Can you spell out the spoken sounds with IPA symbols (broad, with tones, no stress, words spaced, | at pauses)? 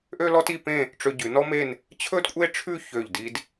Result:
ʔø˥lɔ˥ti˥˧pẽ˥˧ | ʈ͡ʂø˧ɟʉ˩˧ nɔ˥me˥˧n | t͡ɕʰɵ˥dkʷʼe˥ʈ͡ʂʰʉ˥˧ çø˧˩ʎdi˧d